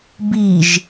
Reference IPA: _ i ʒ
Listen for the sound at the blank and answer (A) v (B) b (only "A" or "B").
B